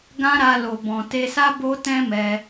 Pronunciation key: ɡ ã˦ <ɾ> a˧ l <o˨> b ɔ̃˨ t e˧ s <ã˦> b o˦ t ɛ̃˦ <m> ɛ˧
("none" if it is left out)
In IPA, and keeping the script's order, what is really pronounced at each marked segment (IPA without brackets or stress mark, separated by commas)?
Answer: ɾ, o˨, a˦, m